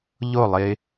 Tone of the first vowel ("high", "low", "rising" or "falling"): falling